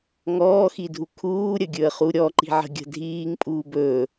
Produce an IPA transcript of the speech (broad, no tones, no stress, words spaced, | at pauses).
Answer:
ŋɔːxidʱu kʰuːɾʲəɡʲɵə̯χu ɾʲɔǃi̤ʕə̤ ɡʲə̤dʱiːŋpʼuːb ɵ